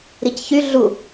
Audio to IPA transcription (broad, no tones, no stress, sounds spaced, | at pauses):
ɾ i c ç y ɮ u